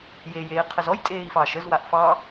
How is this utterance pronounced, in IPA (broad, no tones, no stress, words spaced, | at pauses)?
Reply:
jej eːqʰəzɔj tʼeːi̯fɑːʃəz waʔfɑ